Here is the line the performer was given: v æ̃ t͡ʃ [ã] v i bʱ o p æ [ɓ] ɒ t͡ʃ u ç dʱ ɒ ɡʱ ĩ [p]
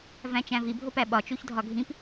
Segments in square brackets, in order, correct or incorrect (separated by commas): incorrect, correct, correct